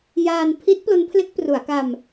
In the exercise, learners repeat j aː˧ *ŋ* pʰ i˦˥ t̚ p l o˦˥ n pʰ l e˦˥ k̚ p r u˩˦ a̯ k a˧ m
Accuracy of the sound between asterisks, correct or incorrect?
incorrect